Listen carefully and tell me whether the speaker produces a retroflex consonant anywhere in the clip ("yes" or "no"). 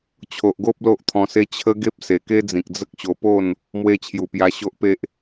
no